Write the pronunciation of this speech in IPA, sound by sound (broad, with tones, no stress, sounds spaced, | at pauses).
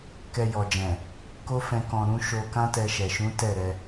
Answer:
k ɛ˧ j ɔ˨ d͡ʒ ɛ̃˨ | k o˦ f ɛ̃˧ k ɔ̃˨ ɾ ũ˧ ʃ o˧ k ã˦ t ɛ˧ ʃ ɛ˨ ʃ ũ˨˦ t ɛ˦˨ ɾ ɛ˧